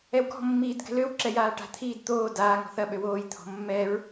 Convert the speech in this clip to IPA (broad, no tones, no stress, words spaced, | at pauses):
ɛwɡɔ̤mːiːd ɡɛ̤løwǁɛ jaːʈa̤t̪ʰiːd t̪oː daːŋɔ̤ θɐɓø woːjt̪ʰɔ̤ mːɛɹ